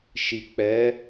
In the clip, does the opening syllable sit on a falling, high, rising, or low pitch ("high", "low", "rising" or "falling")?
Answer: low